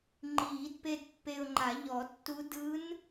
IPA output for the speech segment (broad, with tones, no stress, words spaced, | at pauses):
ŋ͡ǃiː˨˩˦dpe˧d pːe˧ʊ̯ŋ͡ǃa˨˩˦ ʎɔ˨˩˦tːu˧˥ dɯ˧˥n